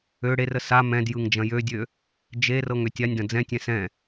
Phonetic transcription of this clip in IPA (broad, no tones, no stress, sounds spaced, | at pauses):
ø ɽ e r ə s a m ɛ̃ d j ɯ ŋ d͡ʒ ɐ̃ j ø dʲ ø | d͡ʒ e r ɤ ŋ ø tʲ a nʲ d ɐ̃ d͡z ɛ̃ tʲ ɛ̃ s ɛ̃